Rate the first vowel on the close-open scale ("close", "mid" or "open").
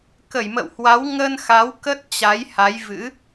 mid